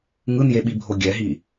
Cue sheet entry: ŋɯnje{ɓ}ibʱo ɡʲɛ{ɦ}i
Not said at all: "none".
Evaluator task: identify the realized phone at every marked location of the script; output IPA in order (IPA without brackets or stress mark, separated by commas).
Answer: ɓ, ɦ